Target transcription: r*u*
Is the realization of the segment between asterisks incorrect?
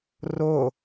yes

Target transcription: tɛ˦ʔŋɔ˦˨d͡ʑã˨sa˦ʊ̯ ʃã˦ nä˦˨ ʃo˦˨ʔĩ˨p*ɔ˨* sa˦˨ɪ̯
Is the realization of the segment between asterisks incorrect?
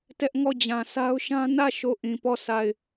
yes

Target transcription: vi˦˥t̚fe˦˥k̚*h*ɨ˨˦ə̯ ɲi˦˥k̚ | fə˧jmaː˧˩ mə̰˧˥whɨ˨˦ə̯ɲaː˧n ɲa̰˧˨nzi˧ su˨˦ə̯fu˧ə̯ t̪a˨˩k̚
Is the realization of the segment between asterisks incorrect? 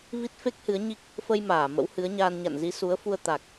no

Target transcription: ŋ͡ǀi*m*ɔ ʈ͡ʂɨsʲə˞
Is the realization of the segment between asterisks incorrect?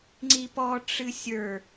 yes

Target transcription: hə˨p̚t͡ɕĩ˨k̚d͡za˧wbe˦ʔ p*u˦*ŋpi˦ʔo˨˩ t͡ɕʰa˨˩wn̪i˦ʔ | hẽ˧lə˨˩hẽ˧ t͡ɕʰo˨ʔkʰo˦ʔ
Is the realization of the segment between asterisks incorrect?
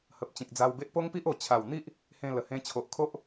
yes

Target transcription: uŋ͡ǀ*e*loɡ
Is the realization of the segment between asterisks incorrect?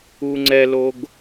yes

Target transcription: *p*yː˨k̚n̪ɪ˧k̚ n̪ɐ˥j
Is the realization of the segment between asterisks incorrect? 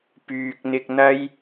no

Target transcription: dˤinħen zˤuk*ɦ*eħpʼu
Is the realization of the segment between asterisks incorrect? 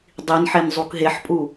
no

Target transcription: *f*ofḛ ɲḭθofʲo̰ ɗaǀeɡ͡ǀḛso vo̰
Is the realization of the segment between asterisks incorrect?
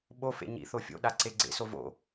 yes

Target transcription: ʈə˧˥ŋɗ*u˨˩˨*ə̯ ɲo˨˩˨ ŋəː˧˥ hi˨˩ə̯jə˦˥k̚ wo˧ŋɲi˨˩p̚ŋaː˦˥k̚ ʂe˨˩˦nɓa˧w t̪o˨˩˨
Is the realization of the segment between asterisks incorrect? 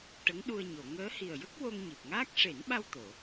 yes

